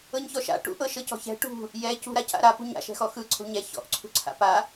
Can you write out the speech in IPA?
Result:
ɤɲçɔʃa̰ ʈṵʔɤʃɤcɔ̤ çɛ̤ ʈṳ | jɛ cṳɾa ca̰ɾa pṳɲa̰ ʃɛ̤xɔxɯ ǀʰo̤ɲɛ çɔ̰ʔǀʰṳǀʰa̰ pa

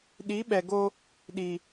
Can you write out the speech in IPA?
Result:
ɗi˨˦ɓɛ˨ɡo˦ | ɗi˨

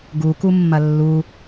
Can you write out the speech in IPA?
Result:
ɡukumːɐ lːu

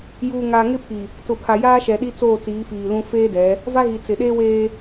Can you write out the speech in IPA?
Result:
juː˨ŋaː˨ŋɪ˦pʰi˨ | tʊ˨pʰa˨jaː˦ʃɛ˨ ɗi˦t͡soː˦˨t͡siː˨˦ fiː˨lũ˦ feː˦dɛ˨˦ | va˦ɣi˨ t͡sɪ˨ ɗeː˦weː˦

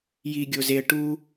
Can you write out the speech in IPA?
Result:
jiɡʲo zeə̯ ʈu

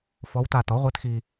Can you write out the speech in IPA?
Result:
fɔ˧˥wta˧tɔ˩˥ ʁʷɘ˧˥t xi˧

